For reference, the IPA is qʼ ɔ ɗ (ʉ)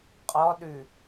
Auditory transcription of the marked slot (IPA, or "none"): ʉ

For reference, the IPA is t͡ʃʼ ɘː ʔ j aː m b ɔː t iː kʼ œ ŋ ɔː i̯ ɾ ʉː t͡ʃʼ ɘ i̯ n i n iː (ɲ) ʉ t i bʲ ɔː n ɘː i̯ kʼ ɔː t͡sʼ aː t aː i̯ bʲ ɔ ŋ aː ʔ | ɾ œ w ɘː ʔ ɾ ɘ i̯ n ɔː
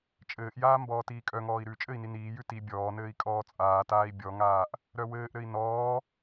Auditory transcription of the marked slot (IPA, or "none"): j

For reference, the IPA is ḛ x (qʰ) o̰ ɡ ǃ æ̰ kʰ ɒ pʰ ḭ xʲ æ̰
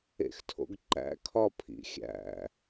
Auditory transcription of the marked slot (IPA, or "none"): tʰ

